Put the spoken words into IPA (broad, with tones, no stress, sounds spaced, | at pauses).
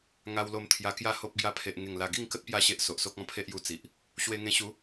ŋ a˧ w l o˧ m t̪ʰ j a˧ k j a˥˧ h o˦ p̚ ɡ j a˧ pʰ e˨ ʔ ŋ e˨˩ ŋ l a˨˩ ɡ i˥˧ ŋ k ə˦ t̚ p j a˥˧ ɕ e˦ ʔ s o˨ ʔ s o˦ k̚ ɔ̃˥˧ pʰ e˦ ʔ j u˧ t͡s i˨ ʔ | ɕ w e˧ ŋ ẽ˧ ɕ u˨˦